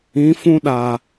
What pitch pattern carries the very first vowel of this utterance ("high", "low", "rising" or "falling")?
rising